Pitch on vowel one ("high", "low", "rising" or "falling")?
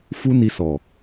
high